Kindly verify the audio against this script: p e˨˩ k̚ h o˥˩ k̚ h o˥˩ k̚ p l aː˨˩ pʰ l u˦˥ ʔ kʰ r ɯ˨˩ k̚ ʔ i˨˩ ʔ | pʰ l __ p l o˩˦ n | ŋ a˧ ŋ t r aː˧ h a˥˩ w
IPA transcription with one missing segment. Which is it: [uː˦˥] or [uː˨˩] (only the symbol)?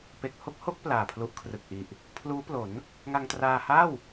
uː˦˥